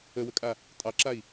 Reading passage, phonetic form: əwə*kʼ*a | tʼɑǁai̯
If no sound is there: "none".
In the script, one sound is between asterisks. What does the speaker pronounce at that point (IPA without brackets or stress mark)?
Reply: kʼ